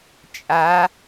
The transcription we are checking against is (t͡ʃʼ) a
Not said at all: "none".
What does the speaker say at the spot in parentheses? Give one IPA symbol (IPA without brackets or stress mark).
t͡ʃʼ